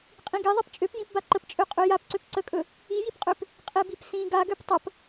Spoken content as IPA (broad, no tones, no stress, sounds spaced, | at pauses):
qʼ ĩ ɡ i ðˤ i p t͡ʃʼ ø p j ĩ p b a ǃ ə p t͡ʃʼ ø qʼ ø j a p ǀ ø p ǀ ə kʼ ɵ | i j i p qʼ ø p | qʼ e b i p s ĩ ɡ a ɡ ø p tˤ ə p